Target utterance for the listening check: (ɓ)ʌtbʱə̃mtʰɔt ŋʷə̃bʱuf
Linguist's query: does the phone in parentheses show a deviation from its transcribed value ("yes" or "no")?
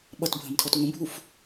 no